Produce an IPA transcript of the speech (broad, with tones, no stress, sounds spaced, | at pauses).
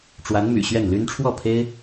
ʈ͡ʂ w a˧˥ n m y̰˨˩ ɕ ɥ ɛ˥˩ n l y˥ n ʈ͡ʂʰ w ɔ˥˩ pʰ e˥ ɪ̯